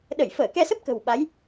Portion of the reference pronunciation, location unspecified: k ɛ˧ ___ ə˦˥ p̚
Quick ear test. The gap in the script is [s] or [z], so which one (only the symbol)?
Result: s